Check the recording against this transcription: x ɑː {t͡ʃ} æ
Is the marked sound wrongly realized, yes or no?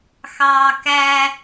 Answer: yes